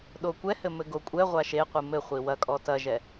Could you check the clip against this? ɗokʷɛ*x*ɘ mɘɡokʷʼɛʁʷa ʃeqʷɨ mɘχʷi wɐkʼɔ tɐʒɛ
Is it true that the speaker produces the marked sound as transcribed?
no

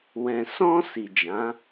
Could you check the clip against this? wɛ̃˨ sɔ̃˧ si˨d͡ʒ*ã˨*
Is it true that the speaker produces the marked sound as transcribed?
no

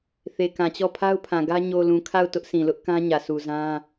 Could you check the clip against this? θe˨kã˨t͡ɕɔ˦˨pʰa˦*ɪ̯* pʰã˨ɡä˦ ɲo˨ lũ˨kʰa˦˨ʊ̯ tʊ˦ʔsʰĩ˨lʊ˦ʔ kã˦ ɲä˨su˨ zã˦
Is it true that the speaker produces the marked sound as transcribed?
no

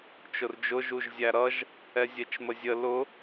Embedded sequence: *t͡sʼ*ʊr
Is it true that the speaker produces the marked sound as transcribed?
no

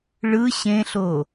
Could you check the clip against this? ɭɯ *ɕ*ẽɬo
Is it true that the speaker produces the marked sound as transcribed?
yes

